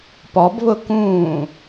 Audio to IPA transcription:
p ɔ b β ʊ k ũː

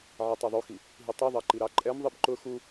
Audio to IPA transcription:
ʕ ɛ tˤ ɛ ðˤ u x i | ɦ i tˤ u ðˤ ɑ ǃ i ɾ ɑ ǃʼ ɛ m ðˤ i b ǃ ʊ x u

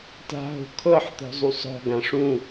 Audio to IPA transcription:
t a̤ ɦ o̤ kʰ ɤ ħ t̪ ɔ̤ zˤ u sˤ ɔ̤ ɡ ã ʂ ũ

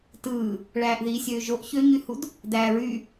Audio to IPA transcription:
t ɯː | ɭ æː ʔ ð iː sʲ øː ʒ o ʔ ç ø ɲ y h u d | d æː ɹ y

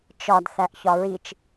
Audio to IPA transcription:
t͡ʃ ɒ d θ æ ʔ ç ɒ ɹ i t͡ʃ

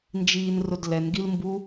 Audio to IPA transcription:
n d͡ʒ iː n r ʊ d l ɛ n ɡ i l m b u

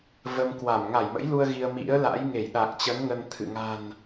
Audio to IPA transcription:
v ə˧ m k w a˧˩ m ŋ a˧˩ j m ə̰˧˥ j l u˧ ə̯ ɣ i˧ ə̯ m ḭ˧˥ ə̯ l a̰˧˥ j ŋ e˧˩ j ɗ a˨˩ k̚ t͡ɕ ə˨˦ n ŋ ə˧ n t̪ʰ ɨ̰˧˨ ŋ a̤˨˩ n

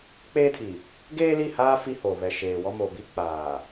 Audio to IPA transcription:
k͡p eː˦ tʰ i˨ | ɡ eː˦ l i˦˨ h aː˦ f i˦ h o˨ β ɛ˨ ʃ eː˨ w ɔ˦ m o˨ b i˦ k͡p aː˨

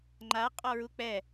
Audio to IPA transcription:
ŋ͡ǃ a qʼ ɔ ɹ u k͡p ɛ

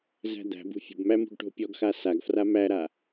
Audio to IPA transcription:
z æ̤ d̪ æ̤ b ṳ fʲ ə̤ b m æ m ṳ ɡ ʈ o̤ pʲ ɔ ɡ x a s a ɡ f r a m æ ɾ a

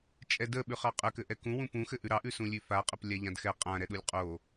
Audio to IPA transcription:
t͡ʃʼ ɛ d ə ɓ ʉ χ ɑ qʼ ə k ɘ ʔ ɛ k ũ w ũ p ũ x ɘ ʔ ʉ ɾ ɑ ʔ ʉ s ũ lʲ ʉ f a qʼ ə p lʲ a ʎ ã d x ɛ qʼ ã ɾ ɛ ɗ u lʲ qʼ o

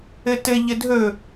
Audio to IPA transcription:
ɘ t ɘ ʎ ɘ dʱ ɵ

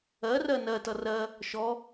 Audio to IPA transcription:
ɜ r ɜ n ɜ t ʌ r ɜ | ʃ ɔ

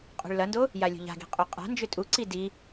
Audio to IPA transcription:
qʼ o̤ ɭ l ɐ n d o | j a lʲ o̤ ʎ a̤ ɡ i̤ qʼ o qʼ a̤ n d͡ʒ ʏ tʼ u ǀ i d i

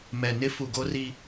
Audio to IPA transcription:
m ɛ˨ n ɪ˦ f u˨ ɡ o˦ r i˦

